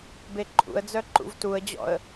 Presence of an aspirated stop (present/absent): absent